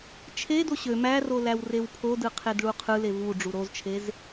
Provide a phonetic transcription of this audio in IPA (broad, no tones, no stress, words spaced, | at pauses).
t͡ʃʰedo ɕø mæro læwrewpʰodɯ qʰedɭuqʰɯle vu ɖ͡ʐuɾozt͡ʃʰez